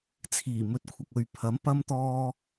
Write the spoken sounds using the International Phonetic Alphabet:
t͡sʰ iː˨˩ m ɵ˨ t̚ kʷʰ ɐ˨ k̚ ɵ˨ ɥ pʰ ɐ˨˥ m p ɐ˧ m t̪ ɔː˧

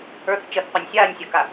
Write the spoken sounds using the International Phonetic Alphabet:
ə˞ θ t͡ʃ ə θ qʷ a nʲ sʲ aː nʲ sʲ ɐ k a

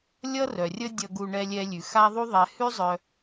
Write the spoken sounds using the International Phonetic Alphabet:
lʲ ʌ˦ r œ˨ rʲ ə˦ dʲ ʌ˧ ɡ u˧ ɳ ɛ˧ lʲ ɛ˧ lʲ ʉ˨ x a˦ ðˤ u˦ ðˤ ɛ˧ h ʉ˦ zˤ œ˧

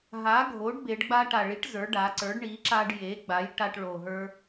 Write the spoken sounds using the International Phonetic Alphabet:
ɦ a˩˥ ɡʱ o˩˥ ɖ b e˩˧ ɖ ɡ͡b a˧ ʈ a˨˩ ɭ i˩˥ ʈ z ə˞˩˥ ɖ a˩˧ ǀ ə˞˩˥ ɖ ɳ i˩˥ ǁ a˧ ɖ j e˩˥ ɡ͡b a˩˥ j ʈ a˧ ʈ ɭ o˨˩ ɦ ə˞˧

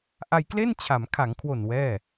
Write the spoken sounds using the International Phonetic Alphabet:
ʔ a˧ j k l e˥˩ n t͡ɕʰ a˩˦ m kʰ a˩˦ ŋ kʰ w o˨˩ n w ɛː˥˩

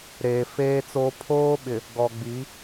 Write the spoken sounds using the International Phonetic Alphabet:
ɾ eː˨ f eː˦ t͡s o˦ pʰ oː˦ ɓ ɪ˨ | ɡ ɔ˨ ɡ͡b i˨˦

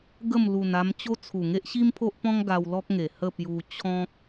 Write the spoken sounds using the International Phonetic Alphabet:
ɡ ə˥˧ m l u˨˩ n a˧ m t͡ɕ o˦ t͡sʰ u˨˩ ŋ e˦ ʔ ɕ i˦ m pʰ o˦ ʔ p ɔ̃˦ ŋ ɡ a˧ w l ɔ˦ k̚ ŋ e˨˩ h ə˥˧ p j u˧ t͡ɕʰ ɔ̃˦ k̚

